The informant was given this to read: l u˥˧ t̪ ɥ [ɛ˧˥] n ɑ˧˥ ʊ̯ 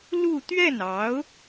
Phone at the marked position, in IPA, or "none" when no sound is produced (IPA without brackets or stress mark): ɛ˥˩